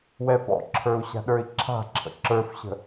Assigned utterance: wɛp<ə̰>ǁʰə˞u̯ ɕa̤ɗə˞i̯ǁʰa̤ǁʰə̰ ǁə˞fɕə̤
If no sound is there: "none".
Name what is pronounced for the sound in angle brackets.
ɔ̰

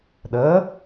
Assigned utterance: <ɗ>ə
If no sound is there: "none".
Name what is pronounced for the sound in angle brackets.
ɗ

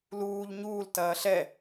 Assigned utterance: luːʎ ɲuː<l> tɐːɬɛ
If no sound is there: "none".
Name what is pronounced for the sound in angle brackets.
l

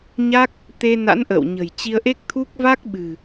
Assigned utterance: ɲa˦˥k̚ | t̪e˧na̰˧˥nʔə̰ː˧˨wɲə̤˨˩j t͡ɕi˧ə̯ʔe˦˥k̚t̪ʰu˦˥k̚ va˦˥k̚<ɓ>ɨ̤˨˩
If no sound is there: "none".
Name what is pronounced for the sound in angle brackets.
ɓ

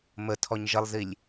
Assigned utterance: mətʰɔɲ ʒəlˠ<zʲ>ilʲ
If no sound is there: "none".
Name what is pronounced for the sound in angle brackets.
z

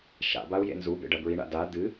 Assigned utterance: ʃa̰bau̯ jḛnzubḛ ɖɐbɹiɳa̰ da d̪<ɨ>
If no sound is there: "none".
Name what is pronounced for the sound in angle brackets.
ɨ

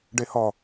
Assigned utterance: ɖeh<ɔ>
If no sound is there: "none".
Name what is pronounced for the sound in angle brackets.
ɔ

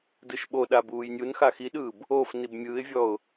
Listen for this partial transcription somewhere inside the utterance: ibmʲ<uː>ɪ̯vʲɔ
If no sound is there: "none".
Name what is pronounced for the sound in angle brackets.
ɯː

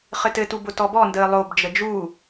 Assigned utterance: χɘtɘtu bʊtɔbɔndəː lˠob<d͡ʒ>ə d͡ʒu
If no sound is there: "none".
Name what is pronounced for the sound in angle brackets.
d͡ʒ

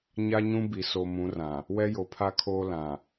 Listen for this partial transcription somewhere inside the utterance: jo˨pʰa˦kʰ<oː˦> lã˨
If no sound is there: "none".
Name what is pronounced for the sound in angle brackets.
oː˦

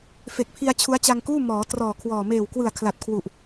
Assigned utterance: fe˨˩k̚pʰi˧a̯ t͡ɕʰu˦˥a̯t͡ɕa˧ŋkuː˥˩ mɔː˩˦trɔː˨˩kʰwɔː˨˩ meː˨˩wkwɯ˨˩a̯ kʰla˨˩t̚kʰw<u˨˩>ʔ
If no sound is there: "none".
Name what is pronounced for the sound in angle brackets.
u˨˩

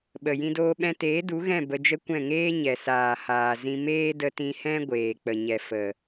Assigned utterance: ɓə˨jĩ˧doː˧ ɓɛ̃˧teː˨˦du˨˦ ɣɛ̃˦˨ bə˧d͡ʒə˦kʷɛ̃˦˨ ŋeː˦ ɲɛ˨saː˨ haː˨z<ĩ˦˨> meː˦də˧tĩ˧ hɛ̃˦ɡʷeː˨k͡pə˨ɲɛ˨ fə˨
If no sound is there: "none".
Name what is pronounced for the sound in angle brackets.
ĩ˧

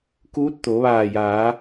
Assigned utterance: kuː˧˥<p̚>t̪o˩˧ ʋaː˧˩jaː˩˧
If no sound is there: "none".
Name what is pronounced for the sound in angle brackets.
t̚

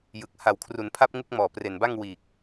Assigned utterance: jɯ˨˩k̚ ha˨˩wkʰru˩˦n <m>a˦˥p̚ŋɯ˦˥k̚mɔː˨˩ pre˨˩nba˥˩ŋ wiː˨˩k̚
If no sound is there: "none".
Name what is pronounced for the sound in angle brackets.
pʰ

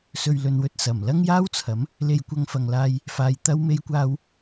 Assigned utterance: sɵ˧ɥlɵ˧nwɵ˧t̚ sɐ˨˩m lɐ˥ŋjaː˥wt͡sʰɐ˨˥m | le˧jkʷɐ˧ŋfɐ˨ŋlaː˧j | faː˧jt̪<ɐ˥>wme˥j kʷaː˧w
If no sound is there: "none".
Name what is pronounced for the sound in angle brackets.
ɐ˥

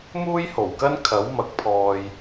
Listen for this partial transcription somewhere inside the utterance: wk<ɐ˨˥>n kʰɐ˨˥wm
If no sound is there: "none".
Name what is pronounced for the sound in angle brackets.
ɐ˥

